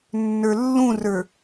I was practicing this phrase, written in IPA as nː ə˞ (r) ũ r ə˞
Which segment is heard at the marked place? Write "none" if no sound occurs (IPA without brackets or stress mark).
lː